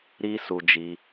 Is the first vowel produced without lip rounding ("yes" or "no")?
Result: yes